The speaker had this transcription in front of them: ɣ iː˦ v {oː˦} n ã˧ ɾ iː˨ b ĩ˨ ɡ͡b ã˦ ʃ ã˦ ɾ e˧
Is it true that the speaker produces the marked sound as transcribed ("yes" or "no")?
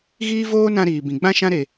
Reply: yes